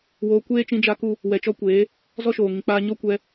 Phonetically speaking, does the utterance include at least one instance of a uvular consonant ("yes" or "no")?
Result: no